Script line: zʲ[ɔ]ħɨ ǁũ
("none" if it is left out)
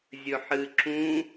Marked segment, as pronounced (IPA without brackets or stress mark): ɵ